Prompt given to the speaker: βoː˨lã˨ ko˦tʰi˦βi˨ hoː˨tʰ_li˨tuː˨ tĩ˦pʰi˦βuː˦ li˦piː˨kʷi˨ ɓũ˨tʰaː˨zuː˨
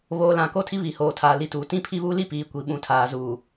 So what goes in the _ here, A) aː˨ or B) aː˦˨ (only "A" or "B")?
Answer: A